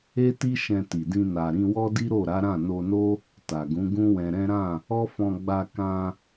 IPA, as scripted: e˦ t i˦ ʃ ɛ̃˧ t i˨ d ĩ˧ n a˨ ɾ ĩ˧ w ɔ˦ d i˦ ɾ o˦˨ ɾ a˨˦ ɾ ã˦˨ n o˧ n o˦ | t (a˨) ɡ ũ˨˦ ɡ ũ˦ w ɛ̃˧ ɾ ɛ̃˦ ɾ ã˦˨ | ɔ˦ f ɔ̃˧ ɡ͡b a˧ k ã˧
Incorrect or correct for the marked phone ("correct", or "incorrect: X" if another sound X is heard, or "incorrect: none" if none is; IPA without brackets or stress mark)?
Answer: correct